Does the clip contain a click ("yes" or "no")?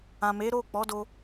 no